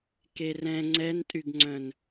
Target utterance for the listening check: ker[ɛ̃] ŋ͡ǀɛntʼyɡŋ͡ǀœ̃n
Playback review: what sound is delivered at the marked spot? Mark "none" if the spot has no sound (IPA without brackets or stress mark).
ɛ̃